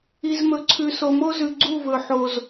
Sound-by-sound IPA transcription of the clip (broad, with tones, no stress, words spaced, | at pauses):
i˨zmɵ˨ ǀʰʉ˨so˨mo˦zʉ˨ ɡ͡ǀu˦˨vɵ˨ ħo˨z